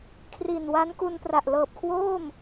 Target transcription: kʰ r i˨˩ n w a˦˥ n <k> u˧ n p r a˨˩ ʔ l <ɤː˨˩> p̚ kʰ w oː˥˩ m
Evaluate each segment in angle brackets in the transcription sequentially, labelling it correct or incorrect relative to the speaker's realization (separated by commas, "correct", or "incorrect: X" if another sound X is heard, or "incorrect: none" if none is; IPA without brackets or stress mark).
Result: correct, correct